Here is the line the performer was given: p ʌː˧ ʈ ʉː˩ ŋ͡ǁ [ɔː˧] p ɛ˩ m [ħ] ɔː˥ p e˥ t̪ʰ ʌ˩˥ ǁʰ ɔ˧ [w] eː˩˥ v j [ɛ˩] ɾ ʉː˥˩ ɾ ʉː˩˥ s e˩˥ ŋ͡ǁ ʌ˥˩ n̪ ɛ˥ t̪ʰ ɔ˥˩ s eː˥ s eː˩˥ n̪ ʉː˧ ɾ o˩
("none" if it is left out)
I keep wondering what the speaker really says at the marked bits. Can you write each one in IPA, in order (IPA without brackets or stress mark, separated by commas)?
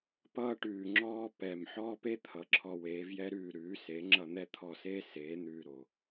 ɔː˧, ħ, w, ɛ˥